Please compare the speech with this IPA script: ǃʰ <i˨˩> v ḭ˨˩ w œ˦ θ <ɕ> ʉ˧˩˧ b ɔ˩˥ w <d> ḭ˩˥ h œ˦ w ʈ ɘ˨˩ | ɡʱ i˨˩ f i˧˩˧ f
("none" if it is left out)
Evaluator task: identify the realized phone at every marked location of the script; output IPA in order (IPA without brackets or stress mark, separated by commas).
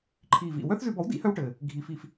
i˨˩, z, d